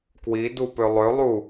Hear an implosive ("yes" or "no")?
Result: no